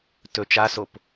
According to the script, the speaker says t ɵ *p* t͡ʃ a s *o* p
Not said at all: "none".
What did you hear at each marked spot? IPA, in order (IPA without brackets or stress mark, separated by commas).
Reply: none, o